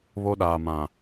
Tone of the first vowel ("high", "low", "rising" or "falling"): high